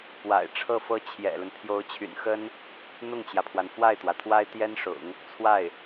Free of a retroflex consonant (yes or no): no